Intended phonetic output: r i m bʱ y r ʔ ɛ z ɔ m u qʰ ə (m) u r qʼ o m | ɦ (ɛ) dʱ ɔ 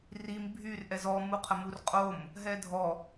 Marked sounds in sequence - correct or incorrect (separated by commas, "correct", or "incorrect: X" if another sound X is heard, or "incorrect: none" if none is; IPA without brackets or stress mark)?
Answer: correct, correct